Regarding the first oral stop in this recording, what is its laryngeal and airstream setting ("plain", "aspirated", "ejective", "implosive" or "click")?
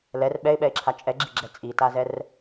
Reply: implosive